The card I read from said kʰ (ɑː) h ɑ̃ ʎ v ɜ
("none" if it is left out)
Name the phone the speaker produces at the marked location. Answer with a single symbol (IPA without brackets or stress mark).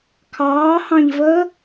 ɑː